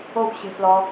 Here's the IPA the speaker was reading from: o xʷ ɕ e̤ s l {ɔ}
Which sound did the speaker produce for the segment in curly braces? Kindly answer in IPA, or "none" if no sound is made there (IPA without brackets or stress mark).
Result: ɔ